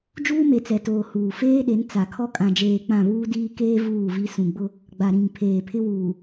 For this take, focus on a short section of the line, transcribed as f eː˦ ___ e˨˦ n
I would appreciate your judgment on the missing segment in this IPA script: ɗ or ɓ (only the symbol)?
ɗ